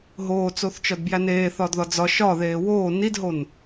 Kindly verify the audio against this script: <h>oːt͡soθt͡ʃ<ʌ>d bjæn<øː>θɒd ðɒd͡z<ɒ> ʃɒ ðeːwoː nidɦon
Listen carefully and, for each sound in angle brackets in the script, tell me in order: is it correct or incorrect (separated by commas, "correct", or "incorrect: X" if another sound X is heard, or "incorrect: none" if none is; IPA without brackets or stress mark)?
incorrect: ɦ, incorrect: ɒ, incorrect: eː, correct